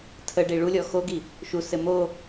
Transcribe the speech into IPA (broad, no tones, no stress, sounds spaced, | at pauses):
tʰ ə ɖ i ɭ u lʲ ɔ x o ɡ i | ʃ u s ɘ m o